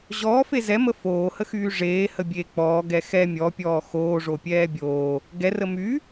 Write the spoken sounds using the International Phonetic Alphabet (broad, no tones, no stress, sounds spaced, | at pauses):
ʑ ɔː f e z ɛ m ə f oː h ə x yː ʐ eː h ə bʲ eː k͡p ɔː ɡ ɛ x ɛ mʲ ɔ pʲ ɔː x oː ʐ o pʲ ɛː bʲ oː | ɡ ɛ r ə m y